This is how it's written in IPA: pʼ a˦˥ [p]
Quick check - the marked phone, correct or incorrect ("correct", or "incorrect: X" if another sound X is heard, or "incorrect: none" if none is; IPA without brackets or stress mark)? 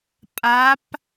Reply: correct